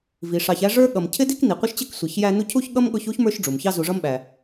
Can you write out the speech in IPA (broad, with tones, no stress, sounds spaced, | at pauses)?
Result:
v i˩ ʂ ɑ˨ ç æ˦ ʐ ə˞˥ ɠ ʌ˨ m cʰ ɪ˥ d i˥ k n i˩ qʷ ɪ˦ ʃ t͡ɕ ɪ˦ k sʷ i˩ ç j æ˦ n u˦ cʰ u˥ ç ɠ ʌ˥ m ɠ ʊ˦ ç u˥ ç m ə˞˦ ʃ ɖ͡ʐ u˩ m ç ɑ˦ z u˨ ʐ ʌ˦ m ɓ æ˩